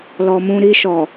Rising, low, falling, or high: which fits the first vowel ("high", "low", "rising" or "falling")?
low